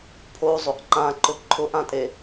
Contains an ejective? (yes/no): yes